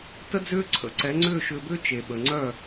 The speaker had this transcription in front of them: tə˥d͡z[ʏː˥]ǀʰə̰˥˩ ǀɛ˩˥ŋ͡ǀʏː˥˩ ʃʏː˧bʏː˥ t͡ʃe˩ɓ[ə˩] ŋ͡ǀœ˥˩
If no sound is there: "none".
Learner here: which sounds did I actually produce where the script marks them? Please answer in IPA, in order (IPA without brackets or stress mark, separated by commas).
ʏː˥, ə˩